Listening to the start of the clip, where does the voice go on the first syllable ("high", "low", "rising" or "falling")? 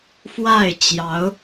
falling